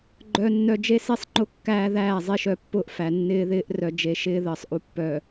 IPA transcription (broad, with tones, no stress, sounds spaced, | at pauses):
ɡ͡ǃ œ˦ nː œ˦ d͡ʒ e˦ s e˦ sˤ ŋ͡ǃ ʊ˦ kː æː˦ ð æː˦˨ zˤ e˦ ʃ œ˦˨ pː ʊː˦ ʔ f æ˨ nː ɪː˦ ð ɪː˦ ʔ r œ˨ d͡ʒ e˨ ʃ ɪː˦ ð əː˨ sˤ ʔ u˨ pː œː˨